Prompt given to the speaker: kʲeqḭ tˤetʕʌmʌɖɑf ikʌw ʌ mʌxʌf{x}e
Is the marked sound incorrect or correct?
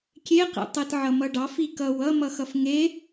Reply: incorrect